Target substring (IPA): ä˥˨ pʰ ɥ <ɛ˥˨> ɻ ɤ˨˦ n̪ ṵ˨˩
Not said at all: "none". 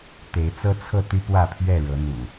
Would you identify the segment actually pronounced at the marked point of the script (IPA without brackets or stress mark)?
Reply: ɛ˥˨